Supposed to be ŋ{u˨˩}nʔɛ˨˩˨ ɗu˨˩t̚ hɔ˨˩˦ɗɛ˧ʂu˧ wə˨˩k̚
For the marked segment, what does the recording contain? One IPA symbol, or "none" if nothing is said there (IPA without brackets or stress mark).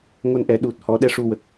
o˨˩